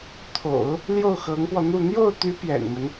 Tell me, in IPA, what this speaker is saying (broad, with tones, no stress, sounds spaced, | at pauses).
t̪ʰ o̰˨˩˦ ʊ̯ | l j o˥˩ ʊ̯ x ɤ˧˥ ŋ p w ɔ˧ n̪ u˥˧ n̪ j o˥˩ ʊ̯ t̪ y˧˥ p j ɛ̰˨˩ n m ə˦ n